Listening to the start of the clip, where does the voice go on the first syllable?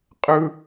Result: high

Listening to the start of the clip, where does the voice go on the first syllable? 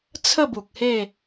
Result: falling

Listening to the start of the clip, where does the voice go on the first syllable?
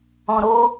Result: low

